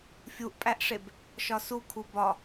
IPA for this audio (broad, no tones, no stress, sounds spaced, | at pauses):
fʲ u ʔ pʼ æ ʔ ʂ e b | ʃ ɒ s u kʰ u b ɒ